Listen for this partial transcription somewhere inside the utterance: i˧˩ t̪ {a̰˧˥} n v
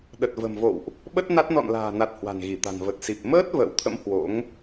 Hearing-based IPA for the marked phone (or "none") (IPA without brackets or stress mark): a̤˨˩